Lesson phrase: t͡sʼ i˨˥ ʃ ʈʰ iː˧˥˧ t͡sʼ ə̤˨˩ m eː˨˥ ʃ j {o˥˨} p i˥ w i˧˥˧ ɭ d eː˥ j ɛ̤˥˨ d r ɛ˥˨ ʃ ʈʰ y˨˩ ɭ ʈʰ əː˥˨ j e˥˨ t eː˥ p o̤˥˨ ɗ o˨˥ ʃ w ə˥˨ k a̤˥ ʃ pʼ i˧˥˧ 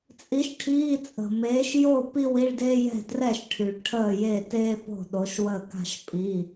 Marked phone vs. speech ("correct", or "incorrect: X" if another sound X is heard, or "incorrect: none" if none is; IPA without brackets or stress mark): correct